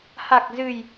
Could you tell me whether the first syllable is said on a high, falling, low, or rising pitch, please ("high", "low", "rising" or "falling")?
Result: low